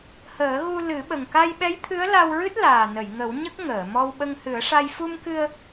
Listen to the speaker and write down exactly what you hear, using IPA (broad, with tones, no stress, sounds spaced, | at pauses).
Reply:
h əː˨˩˦ ɣ u˧ l ɨ˨˩˦ ɓ ə˨˩ ŋ k a˧ j ɓ ɛ˧˥ j t̪ʰ ɨ˧˥ ə̯ l a˧ w ɹ ɨ˦˥ t̚ l aː˨˩ n ə˨˩˨ j ŋ ə˨˩˦ w ɲ ə˦˥ k̚ ŋ əː˨˩˨ m ɔ˧ w ɓ ə˧ ŋ h ɨ˨˩˦ ə̯ ʂ a˧ j f u˧ m k ɨ˧ ə̯